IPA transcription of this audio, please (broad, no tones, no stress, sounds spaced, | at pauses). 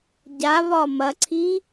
ɟ a β ɒ m ɐ ǀʰ i